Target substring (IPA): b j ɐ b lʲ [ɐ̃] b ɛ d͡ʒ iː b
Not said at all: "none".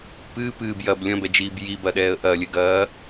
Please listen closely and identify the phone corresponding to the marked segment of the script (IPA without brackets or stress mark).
ɐ̃